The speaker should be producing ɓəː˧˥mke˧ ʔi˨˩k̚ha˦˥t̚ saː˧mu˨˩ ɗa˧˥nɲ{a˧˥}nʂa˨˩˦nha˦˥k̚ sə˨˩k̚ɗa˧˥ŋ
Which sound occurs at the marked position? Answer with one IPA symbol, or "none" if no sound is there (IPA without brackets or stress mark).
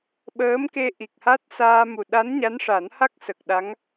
a˧˥